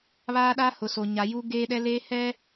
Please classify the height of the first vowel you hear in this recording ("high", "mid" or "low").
low